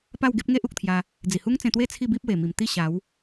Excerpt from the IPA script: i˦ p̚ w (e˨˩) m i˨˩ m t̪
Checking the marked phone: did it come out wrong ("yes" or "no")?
no